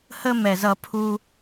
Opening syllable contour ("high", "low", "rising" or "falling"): high